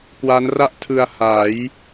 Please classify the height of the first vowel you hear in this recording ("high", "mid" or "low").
low